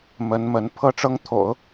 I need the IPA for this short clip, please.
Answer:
m ə˧˥ n m ə˧˥ n pʰ ɤ˥ ʈ͡ʂ ɤ˥ ŋ t̪ʰ o̰˨˩˦ ʊ̯

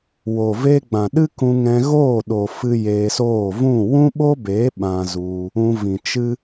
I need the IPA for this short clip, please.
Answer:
w o˨ v e˦ ɡ͡b ã˨ ɗ ɨ˦ k ũ˧ ŋ ɛ̃˧ ɣ oː˦˨ ɗ o˨ f ɨ˧ j eː˧ s oː˦˨ v ũ˦˨ w ũ˦ ɓ o˦ b eː˨˦ ɓ ã˧ z u˧ | ũ˧ v ĩ˨ t͡ʃ ɨ˦

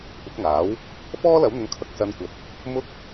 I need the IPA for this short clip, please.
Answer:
kʷ ɪ˨˥ k̚ ŋ aː˨˥ w | f ɔː˥ l ɐ˨˥ w n̪ ʊ˨˧ ŋ kʰ ɐ˨˥ k̚ s ɐ˨˧ n kʷ ɐ˨˥ t̚ | m ʊ˥ k̚

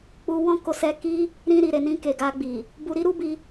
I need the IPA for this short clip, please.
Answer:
k͡p u˧ w ɔ̃˦ k o˧ s ɛ˧ k i˦ | ɾ ĩ˧ ɾ i˨ ɾ e˨ n ĩ˧ k e˨ ɡ a˧ ɡ͡b i˨ | b u˧ ɾ i˦ ɾ u˦ b i˧

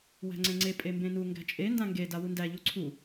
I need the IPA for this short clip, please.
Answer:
w æ̤ ŋ͡ǀ ẽ ŋ͡ǀ e pʼ e m b ẽ n u ŋ ɡ æ̤ t͡ʃʼ e n d ã ŋ ɡ e d a w u n d æ ʎ u ǀʰ u

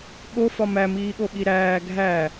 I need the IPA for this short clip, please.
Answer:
ɠ o f ɒ m æ m iː ɠ o ɓ i ɾ æː ɡʱ æ

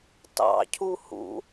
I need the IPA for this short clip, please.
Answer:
t ɑ̰ cʰ u h ṵ

